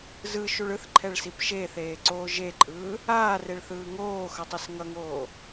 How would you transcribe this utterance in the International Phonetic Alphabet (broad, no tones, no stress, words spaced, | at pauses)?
zɯʃuɭ ɯθǃʰɛɭsip ʃeθeːǀoː ʒeǃʼɯː | aːreɭθɯː ŋoːxʌtˤis ŋʌŋoː